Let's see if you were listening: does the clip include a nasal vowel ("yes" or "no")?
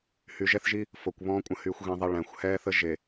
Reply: yes